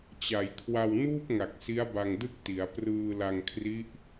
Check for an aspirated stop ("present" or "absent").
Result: present